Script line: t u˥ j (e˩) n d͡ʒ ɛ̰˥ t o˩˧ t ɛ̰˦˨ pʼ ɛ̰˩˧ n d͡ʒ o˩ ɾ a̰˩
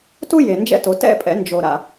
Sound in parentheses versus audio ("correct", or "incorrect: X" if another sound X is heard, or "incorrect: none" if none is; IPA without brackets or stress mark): correct